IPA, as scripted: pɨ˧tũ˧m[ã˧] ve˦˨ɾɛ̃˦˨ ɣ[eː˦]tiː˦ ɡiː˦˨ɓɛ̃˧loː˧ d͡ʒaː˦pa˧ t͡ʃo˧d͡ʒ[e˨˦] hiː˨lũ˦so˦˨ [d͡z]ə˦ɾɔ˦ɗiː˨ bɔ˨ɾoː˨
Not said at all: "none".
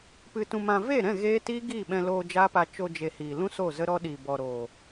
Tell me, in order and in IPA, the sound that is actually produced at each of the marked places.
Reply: ã˧, eː˦, e˨, z

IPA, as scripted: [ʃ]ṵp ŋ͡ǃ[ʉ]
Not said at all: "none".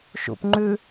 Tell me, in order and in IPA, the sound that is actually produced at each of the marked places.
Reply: ʃ, ʉ

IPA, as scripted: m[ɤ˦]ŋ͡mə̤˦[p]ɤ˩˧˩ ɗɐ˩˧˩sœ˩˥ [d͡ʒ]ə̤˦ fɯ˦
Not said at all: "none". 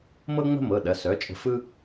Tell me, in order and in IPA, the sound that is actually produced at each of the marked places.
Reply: ɤ˦, m, t͡ʃʼ

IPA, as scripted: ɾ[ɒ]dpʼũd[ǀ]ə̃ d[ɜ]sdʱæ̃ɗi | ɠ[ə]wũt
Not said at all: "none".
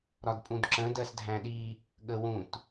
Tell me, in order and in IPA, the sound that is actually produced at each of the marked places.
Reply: ɒ, ǁ, ɜ, ə

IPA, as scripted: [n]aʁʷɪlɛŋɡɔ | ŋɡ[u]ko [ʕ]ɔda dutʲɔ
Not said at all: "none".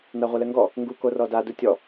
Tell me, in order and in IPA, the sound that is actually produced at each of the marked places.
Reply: n, u, r

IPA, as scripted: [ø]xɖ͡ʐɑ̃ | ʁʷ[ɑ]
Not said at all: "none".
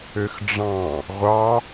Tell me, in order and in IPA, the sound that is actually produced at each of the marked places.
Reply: ø, ɑ

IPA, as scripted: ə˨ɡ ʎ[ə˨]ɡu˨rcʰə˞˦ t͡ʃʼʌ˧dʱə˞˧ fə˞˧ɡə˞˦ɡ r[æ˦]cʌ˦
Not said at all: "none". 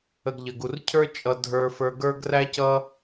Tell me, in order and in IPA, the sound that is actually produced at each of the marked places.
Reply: ə˨, æ˦

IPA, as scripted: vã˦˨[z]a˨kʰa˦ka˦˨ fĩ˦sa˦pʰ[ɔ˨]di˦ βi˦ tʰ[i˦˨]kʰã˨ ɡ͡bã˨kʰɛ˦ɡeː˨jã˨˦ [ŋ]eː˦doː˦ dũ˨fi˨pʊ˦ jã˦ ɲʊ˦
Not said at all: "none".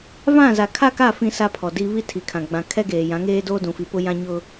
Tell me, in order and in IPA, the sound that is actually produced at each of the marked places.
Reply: z, ɔ˨, i˨, ŋ

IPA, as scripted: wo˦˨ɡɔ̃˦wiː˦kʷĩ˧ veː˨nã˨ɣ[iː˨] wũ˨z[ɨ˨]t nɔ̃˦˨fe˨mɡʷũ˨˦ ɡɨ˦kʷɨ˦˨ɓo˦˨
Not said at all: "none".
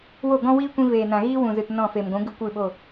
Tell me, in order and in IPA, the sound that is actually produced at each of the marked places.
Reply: iː˦, ɨ˨

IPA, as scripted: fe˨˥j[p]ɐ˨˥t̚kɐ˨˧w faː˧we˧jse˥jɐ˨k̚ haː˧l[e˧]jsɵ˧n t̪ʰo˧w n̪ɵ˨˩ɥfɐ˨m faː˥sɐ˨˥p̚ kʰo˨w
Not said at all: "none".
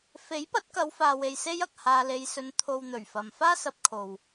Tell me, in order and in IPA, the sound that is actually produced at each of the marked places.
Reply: p, e˧

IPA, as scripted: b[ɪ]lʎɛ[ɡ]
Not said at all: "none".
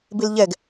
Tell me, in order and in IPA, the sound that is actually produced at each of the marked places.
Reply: ɪ, ɡ

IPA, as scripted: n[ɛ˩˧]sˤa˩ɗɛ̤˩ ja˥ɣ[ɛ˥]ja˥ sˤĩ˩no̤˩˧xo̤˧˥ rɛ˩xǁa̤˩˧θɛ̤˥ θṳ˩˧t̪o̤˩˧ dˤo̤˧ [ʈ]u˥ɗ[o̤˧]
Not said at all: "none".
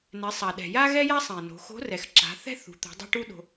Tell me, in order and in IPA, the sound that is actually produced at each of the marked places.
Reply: ɛ˩˧, ɛ˥, ʈ, o̤˧

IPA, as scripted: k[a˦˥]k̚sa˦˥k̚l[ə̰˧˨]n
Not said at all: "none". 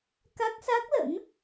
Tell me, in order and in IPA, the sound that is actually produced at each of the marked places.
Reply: a˦˥, ə̰˧˥

